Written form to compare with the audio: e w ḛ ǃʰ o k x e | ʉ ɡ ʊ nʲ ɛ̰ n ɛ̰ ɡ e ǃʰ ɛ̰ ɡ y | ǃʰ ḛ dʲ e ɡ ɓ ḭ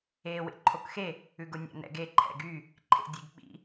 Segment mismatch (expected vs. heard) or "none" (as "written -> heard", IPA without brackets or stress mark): none